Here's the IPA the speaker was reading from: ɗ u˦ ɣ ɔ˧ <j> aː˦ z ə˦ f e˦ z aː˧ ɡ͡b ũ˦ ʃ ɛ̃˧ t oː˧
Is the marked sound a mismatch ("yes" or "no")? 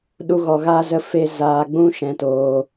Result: yes